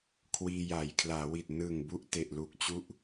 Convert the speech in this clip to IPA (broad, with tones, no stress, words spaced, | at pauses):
kʰwiː˧jaː˩˦jkʰlaː˩˦wi˨˩t̚ nɯ˨˩ŋ bu˥˩ʔte˨˩ʔlu˦˥k̚t͡ɕu˥˩ʔ